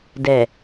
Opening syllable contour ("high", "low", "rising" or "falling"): low